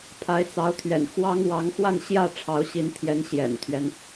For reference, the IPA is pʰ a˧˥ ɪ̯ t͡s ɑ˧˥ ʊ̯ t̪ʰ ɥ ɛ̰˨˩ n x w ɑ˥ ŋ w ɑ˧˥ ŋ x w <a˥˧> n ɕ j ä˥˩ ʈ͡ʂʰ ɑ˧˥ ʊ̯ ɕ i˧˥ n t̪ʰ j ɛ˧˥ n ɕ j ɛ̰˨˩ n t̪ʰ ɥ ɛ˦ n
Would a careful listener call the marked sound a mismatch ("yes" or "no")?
no